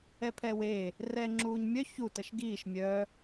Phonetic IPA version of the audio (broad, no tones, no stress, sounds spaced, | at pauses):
ɛ pʰ ɛ w e | r ɛː ŋ͡ǁ uː ɲ mʲ œ ç u t ə ʃ ɡ iː ʃ mʲ œ